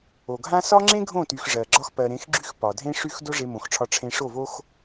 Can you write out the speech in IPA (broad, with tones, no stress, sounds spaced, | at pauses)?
o˨ ɡʱ ã˦ s ɒ˦ ŋ͡ǁ ẽ˦ ɡʱ õ˦˨ t y˨ x ʐ ɜ˨ ɡ͡ǁ ɒ˦ x p ɜ˨ ɾ ẽ˨˦ x ɡ͡ǁ y˦ x p ɒ˨ dʱ ẽ˦ ʂ y˦ x d o˦ ʐ e˧ m õ˨ x ʈ͡ʂʰ ɒ˧ ʈ͡ʂʰ ẽ˧ ʂ o˦˨ v o˦ x